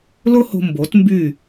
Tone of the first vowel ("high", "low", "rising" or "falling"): high